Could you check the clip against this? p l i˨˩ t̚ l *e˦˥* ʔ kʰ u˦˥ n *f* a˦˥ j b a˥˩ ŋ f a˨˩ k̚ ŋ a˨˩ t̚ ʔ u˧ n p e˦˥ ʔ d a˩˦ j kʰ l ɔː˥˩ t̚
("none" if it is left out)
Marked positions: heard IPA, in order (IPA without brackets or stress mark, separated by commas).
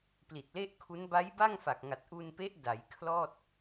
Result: e˥˩, b